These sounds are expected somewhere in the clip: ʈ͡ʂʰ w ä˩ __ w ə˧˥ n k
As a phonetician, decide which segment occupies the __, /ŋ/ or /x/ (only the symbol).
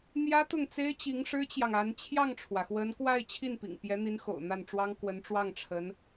x